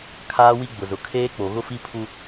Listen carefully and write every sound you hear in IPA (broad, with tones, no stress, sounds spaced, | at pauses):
kʰ aː˦ w i˦ ɡ͡b ʊ˨ z ʊ˨ kʰ eː˦ k͡p o˨ ɣ ʊ˦ f i˦ pʰ u˦